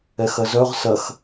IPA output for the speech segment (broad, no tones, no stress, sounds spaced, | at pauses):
ɛ x ɐ z œ ʁ s ɐ x